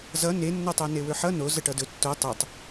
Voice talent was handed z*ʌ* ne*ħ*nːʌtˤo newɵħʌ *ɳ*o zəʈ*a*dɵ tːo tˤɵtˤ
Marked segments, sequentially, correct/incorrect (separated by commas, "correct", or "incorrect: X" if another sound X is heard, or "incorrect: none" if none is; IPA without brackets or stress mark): correct, incorrect: none, incorrect: n, incorrect: ʌ